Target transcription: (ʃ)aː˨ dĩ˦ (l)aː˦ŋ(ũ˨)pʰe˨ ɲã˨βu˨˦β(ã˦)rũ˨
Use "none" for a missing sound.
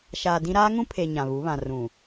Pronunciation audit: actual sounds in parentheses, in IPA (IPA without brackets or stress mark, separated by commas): ʃ, ɾ, ũ˦, ã˨